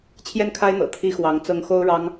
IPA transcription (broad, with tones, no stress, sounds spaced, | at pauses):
t͡ɕʰ j ɛ˥˩ n kʰ a˥ ɪ̯ n̪ ɤ̰˨˩ t̪ʰ i˥ x w ɑ˧˥ ŋ t͡s ɤ˥ ŋ x o˥ ʊ̯ ɻ ɑ˥ ŋ